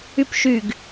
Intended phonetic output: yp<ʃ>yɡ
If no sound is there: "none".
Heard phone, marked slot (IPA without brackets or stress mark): ʃ